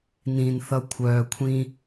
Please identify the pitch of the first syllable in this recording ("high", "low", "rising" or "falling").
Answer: low